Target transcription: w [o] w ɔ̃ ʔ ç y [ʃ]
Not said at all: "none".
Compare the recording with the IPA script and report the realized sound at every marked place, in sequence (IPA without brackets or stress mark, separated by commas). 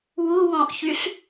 u, ɬ